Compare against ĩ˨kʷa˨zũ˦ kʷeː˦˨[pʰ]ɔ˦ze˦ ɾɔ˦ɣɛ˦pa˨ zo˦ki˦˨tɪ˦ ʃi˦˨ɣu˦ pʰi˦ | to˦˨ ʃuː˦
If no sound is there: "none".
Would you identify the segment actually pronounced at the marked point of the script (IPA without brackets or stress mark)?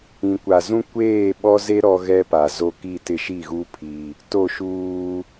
ɓ